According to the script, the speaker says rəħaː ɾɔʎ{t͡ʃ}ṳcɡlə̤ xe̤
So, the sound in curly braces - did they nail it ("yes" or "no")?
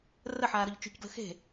yes